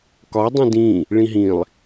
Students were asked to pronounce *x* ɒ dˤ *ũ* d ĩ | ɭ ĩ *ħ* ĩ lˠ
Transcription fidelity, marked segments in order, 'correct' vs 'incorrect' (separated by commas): incorrect, correct, incorrect